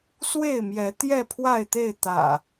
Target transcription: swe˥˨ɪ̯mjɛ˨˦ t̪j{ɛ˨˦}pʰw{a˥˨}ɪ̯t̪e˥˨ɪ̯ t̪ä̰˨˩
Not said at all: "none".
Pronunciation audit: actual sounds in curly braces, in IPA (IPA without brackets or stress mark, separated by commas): ɛ˥˨, a˥˨